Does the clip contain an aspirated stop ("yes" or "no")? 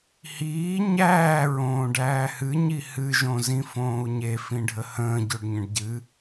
no